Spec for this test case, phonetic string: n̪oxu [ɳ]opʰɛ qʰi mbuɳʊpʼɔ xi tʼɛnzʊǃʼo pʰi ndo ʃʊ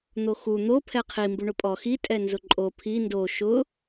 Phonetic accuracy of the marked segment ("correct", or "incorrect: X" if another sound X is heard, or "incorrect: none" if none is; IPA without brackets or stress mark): incorrect: n̪